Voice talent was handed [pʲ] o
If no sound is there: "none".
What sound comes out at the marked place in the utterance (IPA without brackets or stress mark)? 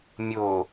mʲ